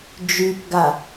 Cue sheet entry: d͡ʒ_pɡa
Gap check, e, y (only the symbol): y